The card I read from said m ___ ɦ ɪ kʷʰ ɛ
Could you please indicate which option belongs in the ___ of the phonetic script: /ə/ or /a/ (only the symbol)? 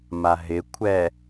a